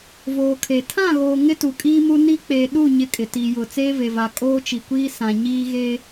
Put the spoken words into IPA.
v oː˨ kʰ e˨ tʰ ã˦˨ ɣ oː˨ ŋ ɪ˦ t u˨ kʼ iː˦ m u˦ n i˦ k͡p eː˨ ɗ u˦˨ ɲ ɪ˦˨ kʼ ɪ˨ t i˨ j ʊ˨ t͡s eː˦ v e˨ v a˨ kʼ oː˦ t͡ʃ i˨ kʷ iː˦ s ã˨ ɲ iː˦ ɣ e˦

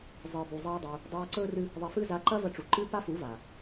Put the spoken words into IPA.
zˤ ɨː˨ b u˨ zˤ eː˦ dˤ uː˧ | dˤ aː˧ ǀ ɵː˦ r ɨ˦ | ðˤ e˧ f ɨ˦ z a˨˦ ǃ ɐ˦ v ɐ˧ ʈ͡ʂ u˨ ǃ ɨː˦ p a˦ f u˨˦ v aː˨

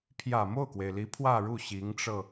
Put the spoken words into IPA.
pʰ j ä˨˩ m o˥˩ ʊ̯ k w e˩ ɪ̯ l i˧˥ pʰ w ä˥˧ ɻ u˥˩ ɕ i˧˥ ŋ ʈ͡ʂ ɤ˧

